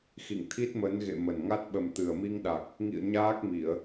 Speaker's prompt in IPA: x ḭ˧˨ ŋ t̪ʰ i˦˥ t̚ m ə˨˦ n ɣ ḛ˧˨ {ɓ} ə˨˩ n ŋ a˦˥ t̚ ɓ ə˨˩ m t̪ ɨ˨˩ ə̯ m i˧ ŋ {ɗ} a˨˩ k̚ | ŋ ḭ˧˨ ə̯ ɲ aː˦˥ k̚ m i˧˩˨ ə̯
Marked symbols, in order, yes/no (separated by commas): no, yes